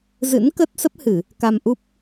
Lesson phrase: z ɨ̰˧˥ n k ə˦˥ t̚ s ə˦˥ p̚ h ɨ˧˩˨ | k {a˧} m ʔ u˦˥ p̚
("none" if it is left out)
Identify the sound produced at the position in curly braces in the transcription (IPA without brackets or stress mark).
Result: a˧